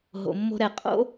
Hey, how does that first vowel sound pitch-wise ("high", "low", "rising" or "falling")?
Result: low